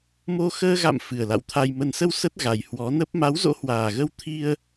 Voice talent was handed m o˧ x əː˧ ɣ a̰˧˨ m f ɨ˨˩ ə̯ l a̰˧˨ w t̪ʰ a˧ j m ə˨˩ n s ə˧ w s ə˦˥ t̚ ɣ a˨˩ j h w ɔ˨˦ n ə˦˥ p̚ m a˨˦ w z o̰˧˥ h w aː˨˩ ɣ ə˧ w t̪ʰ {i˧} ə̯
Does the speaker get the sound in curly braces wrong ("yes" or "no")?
no